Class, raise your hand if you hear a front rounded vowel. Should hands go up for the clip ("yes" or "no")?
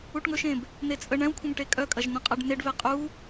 yes